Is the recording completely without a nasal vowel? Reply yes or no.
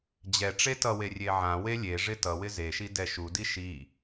no